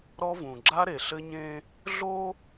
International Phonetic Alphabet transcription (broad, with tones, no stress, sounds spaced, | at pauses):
ɾ ɔ˦ v ũ˨ ɡ͡ǁ a˦ ɾ e˨ ɬ ɘ˦ ɲ ẽ˦ | ɮ o˦